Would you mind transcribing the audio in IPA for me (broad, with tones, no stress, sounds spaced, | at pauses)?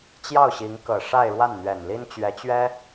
t͡ɕ j ɑ˥˩ ʊ̯ ɕ i˧˥ ŋ k ɤ˨˩ ʂ a˥˧ ɪ̯ ɻ w a˥˩ n n̪ ɥ ɛ˨˩ n l i˥ n t͡ɕ ɥ ɛ˧˥ t͡ɕ ɥ ɛ˥